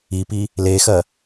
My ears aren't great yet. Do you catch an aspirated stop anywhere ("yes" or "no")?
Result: no